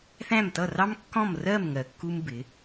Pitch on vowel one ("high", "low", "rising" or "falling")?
falling